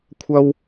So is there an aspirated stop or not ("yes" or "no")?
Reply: yes